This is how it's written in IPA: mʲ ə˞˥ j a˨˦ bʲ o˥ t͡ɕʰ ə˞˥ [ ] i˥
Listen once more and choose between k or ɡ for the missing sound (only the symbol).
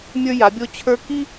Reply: k